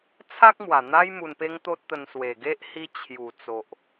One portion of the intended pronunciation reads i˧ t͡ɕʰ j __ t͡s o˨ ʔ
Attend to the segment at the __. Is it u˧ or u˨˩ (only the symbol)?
u˨˩